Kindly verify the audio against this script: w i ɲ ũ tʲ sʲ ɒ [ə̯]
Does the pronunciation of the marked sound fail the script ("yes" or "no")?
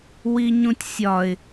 yes